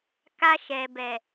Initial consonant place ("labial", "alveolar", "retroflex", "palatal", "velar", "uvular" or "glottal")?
velar